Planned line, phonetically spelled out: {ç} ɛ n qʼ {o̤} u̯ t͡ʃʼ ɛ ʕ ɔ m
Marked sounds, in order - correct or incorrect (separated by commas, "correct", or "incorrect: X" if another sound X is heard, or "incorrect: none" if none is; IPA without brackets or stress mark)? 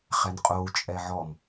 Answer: incorrect: χ, incorrect: o